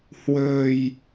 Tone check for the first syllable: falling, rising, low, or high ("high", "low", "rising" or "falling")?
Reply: low